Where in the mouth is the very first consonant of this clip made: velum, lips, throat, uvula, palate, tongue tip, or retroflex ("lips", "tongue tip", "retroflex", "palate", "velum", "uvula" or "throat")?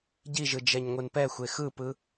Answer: palate